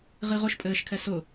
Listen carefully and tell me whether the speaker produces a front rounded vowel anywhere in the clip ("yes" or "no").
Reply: no